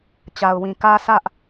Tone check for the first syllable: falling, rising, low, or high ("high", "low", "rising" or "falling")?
low